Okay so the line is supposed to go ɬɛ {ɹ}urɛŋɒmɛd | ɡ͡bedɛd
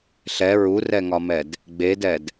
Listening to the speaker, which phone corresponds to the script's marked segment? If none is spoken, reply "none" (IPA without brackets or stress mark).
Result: ɹ